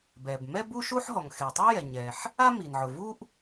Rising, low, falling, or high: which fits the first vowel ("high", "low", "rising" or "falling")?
low